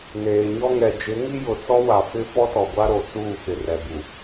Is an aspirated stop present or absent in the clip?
absent